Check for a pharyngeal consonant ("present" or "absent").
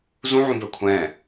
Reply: present